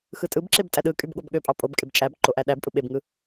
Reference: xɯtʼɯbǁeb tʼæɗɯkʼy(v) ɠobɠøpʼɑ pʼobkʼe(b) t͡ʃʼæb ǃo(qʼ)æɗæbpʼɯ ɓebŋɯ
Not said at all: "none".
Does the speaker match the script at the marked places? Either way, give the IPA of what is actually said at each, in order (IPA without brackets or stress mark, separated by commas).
b, b, ʔ